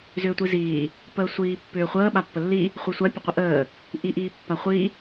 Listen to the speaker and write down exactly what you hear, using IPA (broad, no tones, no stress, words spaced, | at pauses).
zʏːtʷiziː | pəːsʷiːpːʏːχʷəː ɓapːəlːi | χʷisʷa pʲəqʷəʔəː | ʔiʔiːpːaχʷi